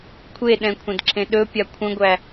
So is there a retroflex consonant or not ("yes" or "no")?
no